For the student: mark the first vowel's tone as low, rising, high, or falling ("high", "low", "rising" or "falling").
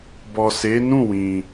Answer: low